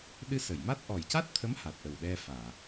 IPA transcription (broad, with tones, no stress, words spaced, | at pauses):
ɗɨ˧sə˨˩˨jma˦˥t̚ ʔɔ˨˩jca˦˥t̚t̪ʰə˧˥m ha˨˩t̚ʔə˨˩wɗɛ˧faː˨˩˨